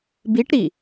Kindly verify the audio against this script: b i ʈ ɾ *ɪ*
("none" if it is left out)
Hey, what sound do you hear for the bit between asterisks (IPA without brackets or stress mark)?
i